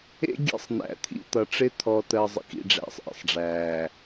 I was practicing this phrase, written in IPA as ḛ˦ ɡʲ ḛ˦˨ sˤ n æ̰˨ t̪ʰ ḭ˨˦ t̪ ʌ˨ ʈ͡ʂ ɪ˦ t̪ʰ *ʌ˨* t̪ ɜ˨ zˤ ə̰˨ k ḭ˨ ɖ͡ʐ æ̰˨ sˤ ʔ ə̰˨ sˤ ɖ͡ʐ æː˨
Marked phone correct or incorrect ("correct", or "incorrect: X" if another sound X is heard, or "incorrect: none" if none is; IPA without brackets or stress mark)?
incorrect: ɔ˨